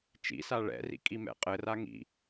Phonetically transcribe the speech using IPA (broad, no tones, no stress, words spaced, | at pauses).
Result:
t͡ʃḭsa ɭɛ̰rḭ kʼimɛ̰qʼɘra ŋḭ